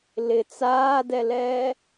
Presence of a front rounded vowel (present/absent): absent